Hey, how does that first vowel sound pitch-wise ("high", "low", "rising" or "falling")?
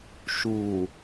low